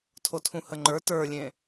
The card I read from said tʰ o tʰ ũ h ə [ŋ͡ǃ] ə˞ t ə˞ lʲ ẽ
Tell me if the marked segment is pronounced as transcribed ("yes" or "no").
yes